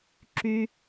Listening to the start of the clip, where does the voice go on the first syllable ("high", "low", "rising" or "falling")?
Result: high